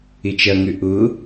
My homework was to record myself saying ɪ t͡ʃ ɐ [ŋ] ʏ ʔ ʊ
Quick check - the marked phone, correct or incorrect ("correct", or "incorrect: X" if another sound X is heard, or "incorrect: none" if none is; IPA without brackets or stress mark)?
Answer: correct